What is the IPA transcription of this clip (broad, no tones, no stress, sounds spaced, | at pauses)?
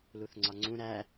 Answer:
l u θ ŋ͡ǀ ɒ ŋ͡ǀ ũ ɾ æ